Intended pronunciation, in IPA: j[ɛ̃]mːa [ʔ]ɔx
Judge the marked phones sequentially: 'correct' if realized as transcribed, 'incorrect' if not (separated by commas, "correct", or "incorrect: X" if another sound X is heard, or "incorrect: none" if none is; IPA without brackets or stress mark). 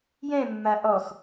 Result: correct, correct